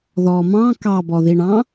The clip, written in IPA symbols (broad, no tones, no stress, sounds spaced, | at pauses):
ð ɔː m ɑ̃ k ɑ b ɔ ð i ɳ ɑ̃